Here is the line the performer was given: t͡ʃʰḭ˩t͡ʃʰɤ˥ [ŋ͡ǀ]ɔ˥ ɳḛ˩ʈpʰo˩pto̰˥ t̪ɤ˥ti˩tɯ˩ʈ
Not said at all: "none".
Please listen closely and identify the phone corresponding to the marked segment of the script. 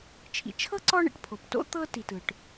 ǀ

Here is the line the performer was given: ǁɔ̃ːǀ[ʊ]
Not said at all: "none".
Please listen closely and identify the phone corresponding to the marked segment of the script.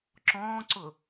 ʊ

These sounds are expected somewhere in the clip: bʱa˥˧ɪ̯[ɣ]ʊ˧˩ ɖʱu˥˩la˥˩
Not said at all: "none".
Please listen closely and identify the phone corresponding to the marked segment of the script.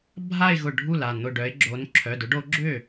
ɣ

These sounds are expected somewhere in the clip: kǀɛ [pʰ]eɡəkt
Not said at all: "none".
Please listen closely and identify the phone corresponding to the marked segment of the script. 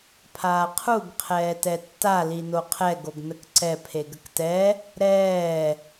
pʰ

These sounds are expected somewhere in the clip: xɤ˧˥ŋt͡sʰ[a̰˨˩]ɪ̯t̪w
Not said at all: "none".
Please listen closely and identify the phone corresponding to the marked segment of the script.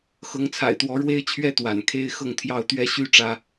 a̰˨˩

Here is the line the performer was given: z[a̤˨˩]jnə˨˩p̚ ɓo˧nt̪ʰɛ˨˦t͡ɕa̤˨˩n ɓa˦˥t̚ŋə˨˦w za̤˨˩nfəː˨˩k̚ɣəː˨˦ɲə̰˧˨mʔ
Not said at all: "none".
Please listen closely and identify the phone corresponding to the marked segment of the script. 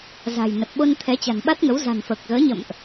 a̤˨˩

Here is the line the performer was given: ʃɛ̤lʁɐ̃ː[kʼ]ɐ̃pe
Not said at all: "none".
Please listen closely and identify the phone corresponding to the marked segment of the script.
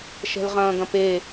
ɡ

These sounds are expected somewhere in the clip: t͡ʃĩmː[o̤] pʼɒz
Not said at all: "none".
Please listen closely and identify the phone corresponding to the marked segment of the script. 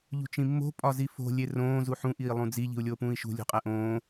o̤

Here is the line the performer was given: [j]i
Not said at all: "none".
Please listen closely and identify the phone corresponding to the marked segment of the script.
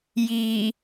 j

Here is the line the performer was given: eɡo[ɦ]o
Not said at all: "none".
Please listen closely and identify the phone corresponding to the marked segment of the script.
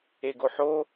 ħ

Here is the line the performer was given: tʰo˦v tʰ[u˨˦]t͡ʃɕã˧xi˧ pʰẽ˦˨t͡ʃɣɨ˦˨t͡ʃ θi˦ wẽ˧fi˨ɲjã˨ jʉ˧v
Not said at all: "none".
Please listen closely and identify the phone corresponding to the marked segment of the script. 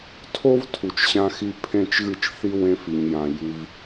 u˨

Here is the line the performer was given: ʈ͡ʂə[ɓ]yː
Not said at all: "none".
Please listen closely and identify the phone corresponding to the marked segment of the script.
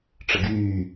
ɡ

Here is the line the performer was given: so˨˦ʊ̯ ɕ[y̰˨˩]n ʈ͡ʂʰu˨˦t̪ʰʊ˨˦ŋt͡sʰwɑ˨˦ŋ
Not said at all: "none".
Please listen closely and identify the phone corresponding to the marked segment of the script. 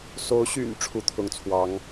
y̰˨˩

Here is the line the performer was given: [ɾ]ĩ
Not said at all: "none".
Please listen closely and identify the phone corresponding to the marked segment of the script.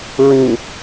ɹ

